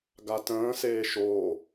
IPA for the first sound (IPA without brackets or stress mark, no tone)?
ɡ